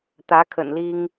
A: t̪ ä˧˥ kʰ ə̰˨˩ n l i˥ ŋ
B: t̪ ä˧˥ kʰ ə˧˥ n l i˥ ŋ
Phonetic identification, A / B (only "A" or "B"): A